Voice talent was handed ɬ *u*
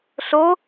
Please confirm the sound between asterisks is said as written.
no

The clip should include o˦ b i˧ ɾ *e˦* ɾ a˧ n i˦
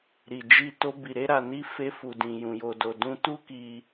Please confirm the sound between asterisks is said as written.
yes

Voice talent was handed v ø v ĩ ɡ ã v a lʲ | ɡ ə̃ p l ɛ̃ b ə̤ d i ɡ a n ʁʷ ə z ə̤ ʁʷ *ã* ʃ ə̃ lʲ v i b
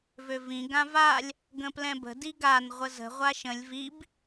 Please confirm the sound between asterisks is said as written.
no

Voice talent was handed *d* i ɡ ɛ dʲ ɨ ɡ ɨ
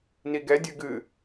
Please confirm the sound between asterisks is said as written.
no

